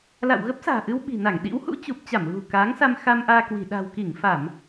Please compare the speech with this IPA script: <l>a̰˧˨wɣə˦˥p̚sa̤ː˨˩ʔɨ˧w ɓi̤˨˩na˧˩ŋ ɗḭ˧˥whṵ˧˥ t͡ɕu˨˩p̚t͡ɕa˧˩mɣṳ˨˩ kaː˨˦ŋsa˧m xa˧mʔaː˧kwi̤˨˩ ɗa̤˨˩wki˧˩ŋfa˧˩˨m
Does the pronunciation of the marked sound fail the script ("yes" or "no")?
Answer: no